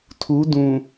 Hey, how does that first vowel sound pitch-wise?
rising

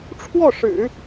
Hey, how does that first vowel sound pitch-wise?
falling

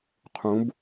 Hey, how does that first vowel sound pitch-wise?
rising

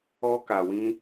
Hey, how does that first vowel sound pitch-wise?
high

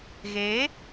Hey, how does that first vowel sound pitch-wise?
rising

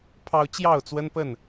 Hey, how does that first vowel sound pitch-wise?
high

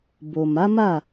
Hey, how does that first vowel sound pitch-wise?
low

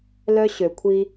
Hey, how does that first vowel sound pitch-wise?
high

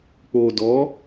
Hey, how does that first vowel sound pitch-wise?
low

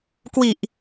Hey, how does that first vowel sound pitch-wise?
low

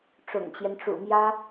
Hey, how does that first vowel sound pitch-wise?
low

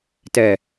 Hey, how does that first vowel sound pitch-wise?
low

